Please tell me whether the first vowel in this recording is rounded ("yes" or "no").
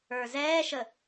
no